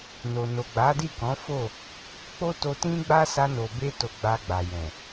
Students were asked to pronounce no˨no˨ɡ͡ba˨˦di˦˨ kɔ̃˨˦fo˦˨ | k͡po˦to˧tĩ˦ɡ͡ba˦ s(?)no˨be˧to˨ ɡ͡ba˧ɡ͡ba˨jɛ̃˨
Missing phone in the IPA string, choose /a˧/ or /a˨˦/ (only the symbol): a˧